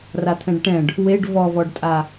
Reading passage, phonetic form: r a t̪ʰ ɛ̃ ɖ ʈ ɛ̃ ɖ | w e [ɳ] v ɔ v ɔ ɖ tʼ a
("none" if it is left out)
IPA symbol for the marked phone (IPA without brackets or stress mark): ɖ